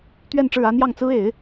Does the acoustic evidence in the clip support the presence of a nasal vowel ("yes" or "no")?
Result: no